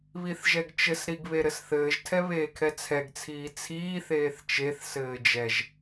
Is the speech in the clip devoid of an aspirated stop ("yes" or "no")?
no